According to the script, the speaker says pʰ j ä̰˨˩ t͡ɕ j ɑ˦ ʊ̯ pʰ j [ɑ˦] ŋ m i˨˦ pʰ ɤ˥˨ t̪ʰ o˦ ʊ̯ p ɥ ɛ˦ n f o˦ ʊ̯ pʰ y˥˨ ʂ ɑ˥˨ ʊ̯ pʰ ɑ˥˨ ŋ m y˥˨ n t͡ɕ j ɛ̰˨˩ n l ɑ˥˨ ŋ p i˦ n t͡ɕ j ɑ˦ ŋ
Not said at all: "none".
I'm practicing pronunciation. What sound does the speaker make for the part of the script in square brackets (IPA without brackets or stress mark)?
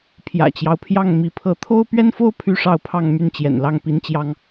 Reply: ɑ˥˨